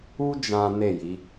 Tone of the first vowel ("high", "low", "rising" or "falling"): high